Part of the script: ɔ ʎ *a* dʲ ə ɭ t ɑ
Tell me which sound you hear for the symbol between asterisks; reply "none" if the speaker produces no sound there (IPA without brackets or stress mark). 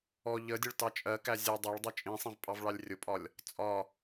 ə